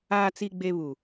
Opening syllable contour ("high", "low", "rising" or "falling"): low